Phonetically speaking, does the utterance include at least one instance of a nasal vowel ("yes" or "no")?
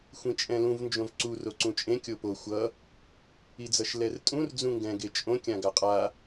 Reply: yes